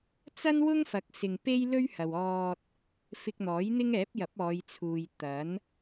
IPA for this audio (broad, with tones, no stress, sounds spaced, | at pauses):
t͡s ɐ˥ n w ʊ˥ ŋ f ɐ˨˥ k̚ s ɪ˨ ŋ p e˥ j l ɵ˥ ɥ h ɐ˨ w ɔː˧ t̚ | f ɪ˧ k̚ n̪ ɔː˨˥ j n̪ ɪ˥ ŋ ɛː˨˥ p̚ j ɐ˨˥ p̚ ɔː˨˧ j t͡sʰ uː˨ j t̪ ɐ˨˥ n